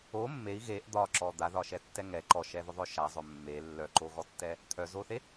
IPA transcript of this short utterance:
o mːei̯ ɣeʔ d̪ɒǁɔ d̪aðɒʃɛtːɛ ŋɛ ǃɔʃɛðʊðˤœ ʃazˤœ mːe lːœǃoɣɔtːɛ | t̪ʰœzoθe

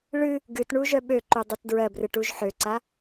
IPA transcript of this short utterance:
ɭɨ | ɡɨtɳu ʒœɓøǃu dˤøtdɹɜbrɨ ʈuʒħøǀa

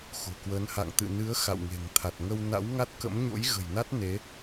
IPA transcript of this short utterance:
xo̤˨˩kwə˨˦n ha̰˧˨ŋt̪ɨ̰˧˨ nɨ˨˦ə̯ xa̰˧˨wŋe̤˨˩ŋ t̪ʰa˨˩t̚ŋə˧w na̰˧˥wŋa˦˥t̚kə̰˧˥m ɲo̰˧˥jɣə̤˨˩jna˦˥t̚ ne˨˦

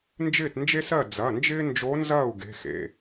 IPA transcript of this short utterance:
nd͡ʒɪː˥˨tnd͡ʒe˥sɜ˥˨ d͡zɐ˩˧˩ nd͡ʒɪː˥nd͡ʒo˧˥ nzɐː˥˨u̯ ɡe̤˩˧˩xḛ˩˧˩

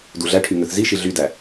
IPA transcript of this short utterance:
duɮæʈʰy ŋøθziʃi ɮydæ

